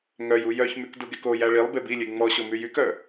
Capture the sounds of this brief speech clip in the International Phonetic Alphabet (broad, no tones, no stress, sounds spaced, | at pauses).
ŋ œ j u j œ ç m y k d u ɡ e k o j æ ɭ i lˠ b e b i lʲ e ŋ͡m ɔ ɕ o m y j y k œ